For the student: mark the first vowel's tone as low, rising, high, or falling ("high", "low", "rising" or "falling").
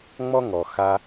high